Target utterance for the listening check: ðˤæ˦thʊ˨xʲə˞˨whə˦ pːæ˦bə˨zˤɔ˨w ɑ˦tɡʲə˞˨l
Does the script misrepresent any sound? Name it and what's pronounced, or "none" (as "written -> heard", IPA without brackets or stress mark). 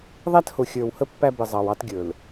ɔ˨ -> ɑ˨